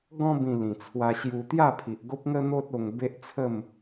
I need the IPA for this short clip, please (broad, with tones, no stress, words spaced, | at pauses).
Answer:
ɡɔ̃˧bĩ˨˩ lĩ˨˩t͡sʰwa˧ɕju˧ t̪ja˥˧pʰi˨ʔɡo˦p̚ŋə˦ n̪o˦t̚o˧ŋ be˦ʔt͡sʰə˥˧m